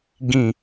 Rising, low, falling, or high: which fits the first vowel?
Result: low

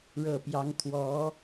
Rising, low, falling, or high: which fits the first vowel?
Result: low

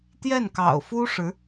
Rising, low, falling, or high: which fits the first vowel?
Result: falling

